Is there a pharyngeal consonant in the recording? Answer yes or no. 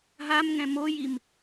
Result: no